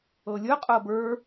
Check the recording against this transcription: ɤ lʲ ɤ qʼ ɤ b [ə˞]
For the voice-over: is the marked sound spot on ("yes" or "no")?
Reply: yes